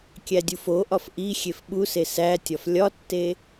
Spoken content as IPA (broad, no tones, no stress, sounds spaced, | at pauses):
kʲ æ dʲ u f o ʔ ɒ f ʔ i xʲ e f ɓ u s e s æ tʲ ɒ f lʲ ɒ tː e